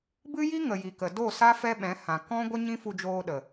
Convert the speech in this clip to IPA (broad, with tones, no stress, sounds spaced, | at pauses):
b ɨ˦ j i˦ ŋ ə˨ j i˨ k ə˨ d o˦˨ s a˦ f ɛ˦ ɓ ɛ̃˨˦ h ã˨ k ɔ̃˦ ɡʷ ə˦ ɲ ĩ˦ f u˧ d͡ʒ oː˧ ɗ ə˨